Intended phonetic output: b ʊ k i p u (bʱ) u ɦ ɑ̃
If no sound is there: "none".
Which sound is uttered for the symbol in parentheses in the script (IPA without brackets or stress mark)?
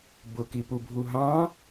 bʱ